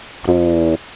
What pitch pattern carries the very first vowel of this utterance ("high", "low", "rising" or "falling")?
low